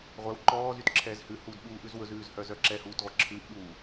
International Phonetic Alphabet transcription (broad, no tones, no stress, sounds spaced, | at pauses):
ʁʷ ɛ w ǃ ɔː z y t ǁʰ ɛː z h ʉ h uː d ɓ uː ʔ ʉ z w ɵ z ʉː z h œ z œ ǁ ɛ h uː t ʁʷ ɛ ǁʰ ʉː ʔ ɓ uː